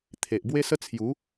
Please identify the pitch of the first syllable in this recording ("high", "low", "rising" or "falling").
low